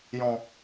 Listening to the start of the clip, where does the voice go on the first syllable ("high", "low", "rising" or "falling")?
low